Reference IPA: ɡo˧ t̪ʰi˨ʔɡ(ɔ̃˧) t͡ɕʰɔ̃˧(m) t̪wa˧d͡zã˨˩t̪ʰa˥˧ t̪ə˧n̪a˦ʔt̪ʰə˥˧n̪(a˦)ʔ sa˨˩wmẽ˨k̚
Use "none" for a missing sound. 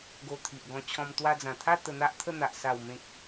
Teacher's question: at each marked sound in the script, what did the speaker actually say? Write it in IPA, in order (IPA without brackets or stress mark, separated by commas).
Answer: ɔ̃˧, m, a˨